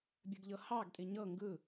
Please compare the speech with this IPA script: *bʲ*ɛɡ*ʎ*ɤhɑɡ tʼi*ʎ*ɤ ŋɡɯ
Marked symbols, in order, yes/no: yes, yes, no

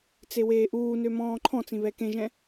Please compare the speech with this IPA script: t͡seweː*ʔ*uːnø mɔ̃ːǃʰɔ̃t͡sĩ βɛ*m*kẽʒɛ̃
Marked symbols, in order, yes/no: yes, no

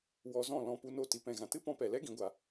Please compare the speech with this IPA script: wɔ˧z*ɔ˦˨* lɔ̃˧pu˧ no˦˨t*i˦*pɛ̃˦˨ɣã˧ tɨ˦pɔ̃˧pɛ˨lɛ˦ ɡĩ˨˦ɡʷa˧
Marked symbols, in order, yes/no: no, no

